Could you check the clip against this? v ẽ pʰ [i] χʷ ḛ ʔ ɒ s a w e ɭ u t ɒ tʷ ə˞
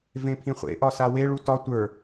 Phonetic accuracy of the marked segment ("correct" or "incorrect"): incorrect